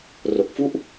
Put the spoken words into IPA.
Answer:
r o˨˩ k̚ f u˦˥ ʔ

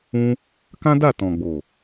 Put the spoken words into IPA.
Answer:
ũ˦ | k ã˦ d a˦˨ t ɔ̃˨ ɡ͡b o˨

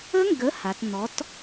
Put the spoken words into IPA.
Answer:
ə˦˥ ŋ ɡ ə˨˥ h a˩˧ t n̪ ɔ˨˥ t

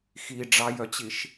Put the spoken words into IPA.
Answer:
x i ɖ͡ʐ ɑ j œ t͡ɕ i ʃ

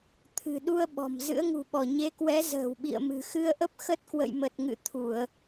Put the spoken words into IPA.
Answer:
t̪ʰ ɨ̤˨˩ ɗ u˧ ə̯ ɓ ɔ̤˨˩ m z ɨ̰˧˥ ə̯ ŋ ṳ˨˩ ɓ ɔ˧˩ ɲ e˨˦ k w ɛ˨˦ z ə̤ː˨˩ w ɓ ḭ˧˨ ə̯ m ɨ̤˨˩ x ɨ˧ ə̯ ʔ ə˦˥ p̚ x ə˦˥ t̚ k w ə̰˧˨ j m ə˨˩ t̚ ŋ ɨ̰˧˨ t̪ʰ u˧˩˨ ə̯

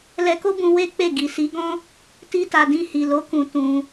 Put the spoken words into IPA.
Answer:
l ɛ˧ k o˦ b ũ˧ w e˦ k͡p e˦˨ ɡ i˨ s i˨˦ ɡ ɔ̃˦ | t i˦ t a˧ d ĩ˧ h i˨ l o˨˦ k ũ˧ t ũ˧

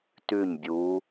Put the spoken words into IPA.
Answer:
t ʉ˥˨ ɲ bʲ uː˧˥

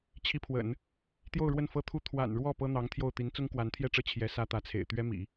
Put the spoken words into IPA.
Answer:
t͡ɕʰ i˧˥ pʰ w ə̰˨˩˦ n | t̪ j o˥˧ ʊ̯ ɻ w ə˥˩ n f ɤ˥ t̪ʰ u˥ t̪ʰ w a̰˨˩ n ɻ w ɔ˥˩ p ɤ˥ n̪ ɑ˧˥ ŋ t̪ʰ j o˥˩ ʊ̯ t̪ i˧˥ n t͡s ʊ˥ ŋ k w a˧˥ n t̪ʰ j ɛ˥˧ ʈ͡ʂ ɤ˥˩ t͡ɕʰ j ɛ˧˥ s ä˥ t̪ ä˧˥ t͡sʰ ḛ˨˩ ɪ̯ t̪ ɥ ɛ˥ m ḭ˨˩˦

